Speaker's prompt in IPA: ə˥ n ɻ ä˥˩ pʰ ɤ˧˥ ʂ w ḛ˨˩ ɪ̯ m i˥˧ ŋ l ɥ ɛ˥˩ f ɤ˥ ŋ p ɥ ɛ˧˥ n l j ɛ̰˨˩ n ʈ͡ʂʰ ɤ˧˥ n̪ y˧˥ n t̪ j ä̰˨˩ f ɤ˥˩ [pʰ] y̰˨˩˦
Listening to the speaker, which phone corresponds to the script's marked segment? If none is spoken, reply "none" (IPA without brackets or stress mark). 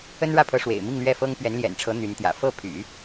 pʰ